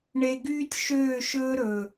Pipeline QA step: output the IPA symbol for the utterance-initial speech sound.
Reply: ɳ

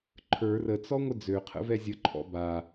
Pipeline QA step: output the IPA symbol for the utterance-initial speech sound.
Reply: ǃʰ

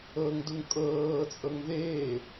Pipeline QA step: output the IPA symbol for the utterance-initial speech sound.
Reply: ɤ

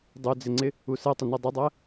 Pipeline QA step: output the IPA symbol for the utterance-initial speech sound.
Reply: dˤ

